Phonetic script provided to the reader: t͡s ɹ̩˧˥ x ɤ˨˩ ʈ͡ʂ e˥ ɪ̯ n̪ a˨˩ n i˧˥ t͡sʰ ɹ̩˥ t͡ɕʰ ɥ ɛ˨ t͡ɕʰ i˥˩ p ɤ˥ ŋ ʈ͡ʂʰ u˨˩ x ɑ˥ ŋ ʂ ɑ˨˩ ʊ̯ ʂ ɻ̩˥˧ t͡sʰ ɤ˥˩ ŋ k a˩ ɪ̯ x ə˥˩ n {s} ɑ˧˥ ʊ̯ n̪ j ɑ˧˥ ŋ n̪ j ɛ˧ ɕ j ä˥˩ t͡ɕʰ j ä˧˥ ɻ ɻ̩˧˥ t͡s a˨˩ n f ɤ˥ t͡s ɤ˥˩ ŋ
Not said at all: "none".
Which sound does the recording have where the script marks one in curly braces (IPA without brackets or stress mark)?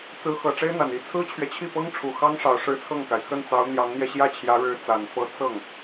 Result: t͡s